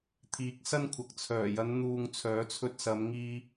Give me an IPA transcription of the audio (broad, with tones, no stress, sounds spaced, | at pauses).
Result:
t̪ʰ iː˨˥ k̚ s ɐ˥ n kʷʰ ɐ˨ k̚ t͡sʰ œː˨˩ j ɐ˨˧ n n̪ uː˨ ŋ t͡sʰ œː˨˥ t͡sʰ ɵ˧ t̚ s ɐ˨˧ m ŋ iː˥